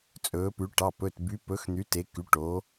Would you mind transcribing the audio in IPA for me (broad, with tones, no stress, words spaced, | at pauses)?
t͡sʼɵː˩˧pʉ˩˧ ʈɑ˩˧˩pɵ˩˧˩t by˩˧pɵ˩˧xn̪y˩˧ te˩˧ky˩˧ ʈo˩˧